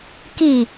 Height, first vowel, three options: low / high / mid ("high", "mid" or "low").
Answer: high